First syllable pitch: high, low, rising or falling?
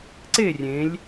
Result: falling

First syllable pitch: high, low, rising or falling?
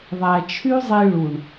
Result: low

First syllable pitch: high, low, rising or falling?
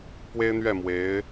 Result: high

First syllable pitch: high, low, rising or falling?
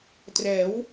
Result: rising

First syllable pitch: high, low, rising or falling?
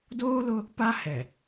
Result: high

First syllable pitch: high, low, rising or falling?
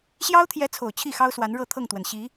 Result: high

